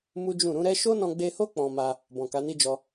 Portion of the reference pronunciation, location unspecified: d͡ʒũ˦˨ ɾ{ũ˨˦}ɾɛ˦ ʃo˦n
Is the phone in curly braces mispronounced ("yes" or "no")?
no